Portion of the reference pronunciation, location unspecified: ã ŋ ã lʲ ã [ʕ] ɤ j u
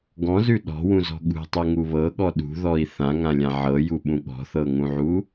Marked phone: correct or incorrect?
correct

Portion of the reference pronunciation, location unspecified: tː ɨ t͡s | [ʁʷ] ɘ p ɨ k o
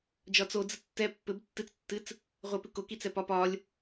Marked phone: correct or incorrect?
correct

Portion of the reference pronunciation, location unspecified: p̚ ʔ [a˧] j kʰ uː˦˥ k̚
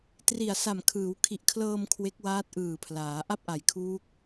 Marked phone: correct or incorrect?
incorrect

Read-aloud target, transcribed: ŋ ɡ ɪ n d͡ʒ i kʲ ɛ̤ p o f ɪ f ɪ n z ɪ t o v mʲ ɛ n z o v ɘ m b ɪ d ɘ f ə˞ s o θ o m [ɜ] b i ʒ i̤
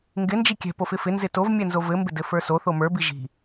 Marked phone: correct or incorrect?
incorrect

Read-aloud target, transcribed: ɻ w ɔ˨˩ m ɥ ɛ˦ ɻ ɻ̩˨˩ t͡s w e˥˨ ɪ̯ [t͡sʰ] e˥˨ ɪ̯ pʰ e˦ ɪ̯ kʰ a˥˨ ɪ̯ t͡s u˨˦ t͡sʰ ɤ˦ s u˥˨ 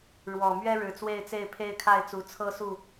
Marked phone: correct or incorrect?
incorrect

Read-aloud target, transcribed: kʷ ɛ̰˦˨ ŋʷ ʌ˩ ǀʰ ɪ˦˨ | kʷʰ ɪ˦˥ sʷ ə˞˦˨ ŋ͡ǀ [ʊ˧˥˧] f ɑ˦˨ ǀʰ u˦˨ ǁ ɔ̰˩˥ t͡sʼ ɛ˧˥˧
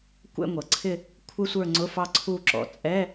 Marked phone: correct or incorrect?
correct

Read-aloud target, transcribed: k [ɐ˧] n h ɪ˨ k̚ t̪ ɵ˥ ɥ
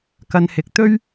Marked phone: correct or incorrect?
correct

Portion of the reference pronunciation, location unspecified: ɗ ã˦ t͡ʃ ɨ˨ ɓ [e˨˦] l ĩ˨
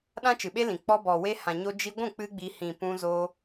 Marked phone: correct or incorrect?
incorrect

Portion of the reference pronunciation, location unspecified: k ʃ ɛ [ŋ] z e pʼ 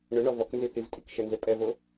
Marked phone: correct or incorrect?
incorrect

